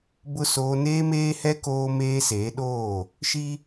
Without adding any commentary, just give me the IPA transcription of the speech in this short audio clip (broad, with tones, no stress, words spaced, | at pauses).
bʊ˦ soː˦ neː˦meː˦hɛ˦ koː˦meː˦ seː˨˦ɗoː˦˨ | ʃi˦